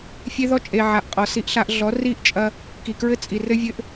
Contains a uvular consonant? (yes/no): yes